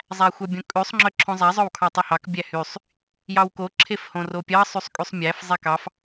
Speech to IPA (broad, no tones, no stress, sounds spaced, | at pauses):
zˤ æ xʷ œ bʲ õ kʼ ʉ sˤ ŋ͡ǁ œ ǁʰ õ zˤ æ zˤ œ w kʰ ɑ tˤ ʉ h ɑ k bʲ æ h y sˤ | j ɑ w k o ǁʰ e f h õ r o pʲ ɑ sˤ y sˤ kʼ y sˤ mʲ æ f zˤ e k ɑ f